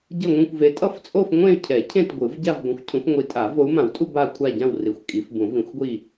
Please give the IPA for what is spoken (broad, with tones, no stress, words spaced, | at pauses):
ɟʌ˥˧ŋʷĩ˥˧kʷ ve˨˦tʼʌ˥˧ft͡sʼo˥˧f ŋʷẽ˥˧y̯cʰɛ˨˩˦ cʰẽ˥˧tɡʷɯ˨˩˦v ɟa˥˧vɡʷɛ̃˨˦xʷ cʰũ˨˦fŋʷi˨˦tʼa˨˩˦ vo˨˦u̯mã˨˩˦wtʼu˥˧ ba˥˧kʷʰa˥˧ ɟã˥˧w ri˨˦xʷkʼi˨˦f bũ˨˩˦vĩ˨˩˦xʷɡʷi˥˧